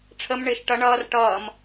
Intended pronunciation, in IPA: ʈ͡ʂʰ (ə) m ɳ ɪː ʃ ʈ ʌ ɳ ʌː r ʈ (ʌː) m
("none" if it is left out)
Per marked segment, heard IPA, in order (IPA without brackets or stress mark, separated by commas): ə, ʌː